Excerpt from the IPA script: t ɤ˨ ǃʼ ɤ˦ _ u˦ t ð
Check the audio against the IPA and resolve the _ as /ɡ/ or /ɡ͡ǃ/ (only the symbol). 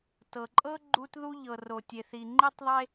ɡ͡ǃ